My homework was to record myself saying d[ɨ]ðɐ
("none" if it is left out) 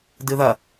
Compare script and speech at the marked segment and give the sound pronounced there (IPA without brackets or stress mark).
ɨ